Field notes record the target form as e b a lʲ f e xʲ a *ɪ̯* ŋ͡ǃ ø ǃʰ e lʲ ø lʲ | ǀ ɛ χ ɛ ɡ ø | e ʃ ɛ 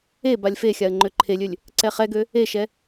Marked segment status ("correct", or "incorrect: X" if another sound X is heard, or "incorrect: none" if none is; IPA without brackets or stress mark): incorrect: ə̯